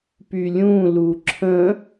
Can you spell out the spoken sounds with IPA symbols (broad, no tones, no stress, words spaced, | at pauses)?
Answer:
pylʲũlu ǁʰə̃